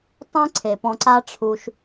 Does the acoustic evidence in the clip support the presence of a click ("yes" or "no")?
yes